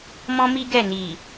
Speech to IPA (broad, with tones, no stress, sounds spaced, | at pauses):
m ɔ̃˦ m i˦ ɡ ɛ˦˨ n i˨